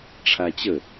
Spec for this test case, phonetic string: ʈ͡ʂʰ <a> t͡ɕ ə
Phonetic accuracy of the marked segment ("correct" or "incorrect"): correct